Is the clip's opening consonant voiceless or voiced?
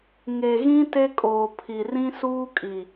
voiced